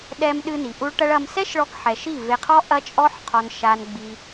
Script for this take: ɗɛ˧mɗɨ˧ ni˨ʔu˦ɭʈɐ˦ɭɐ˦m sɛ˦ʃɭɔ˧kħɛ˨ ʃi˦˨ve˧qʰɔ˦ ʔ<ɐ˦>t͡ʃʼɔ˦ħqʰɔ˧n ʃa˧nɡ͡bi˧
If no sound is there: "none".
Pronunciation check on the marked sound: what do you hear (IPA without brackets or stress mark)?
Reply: ɐ˦